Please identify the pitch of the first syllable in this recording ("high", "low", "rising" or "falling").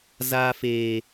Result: high